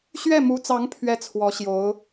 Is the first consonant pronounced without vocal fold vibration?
yes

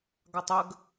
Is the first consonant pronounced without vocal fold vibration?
no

